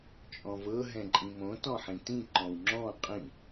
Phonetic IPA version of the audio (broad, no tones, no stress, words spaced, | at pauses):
t͡ʃʼɔ̃vɤ ɦɛ̃ǃʼĩmõ tɔ̃ħĩtĩ ǃɔ̃wŋ͡ǁɔ̃ qʼĩ